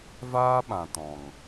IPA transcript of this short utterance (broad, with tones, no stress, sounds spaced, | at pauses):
v aː˦ ɓ ã˨ t ɔ̃˨ ŋ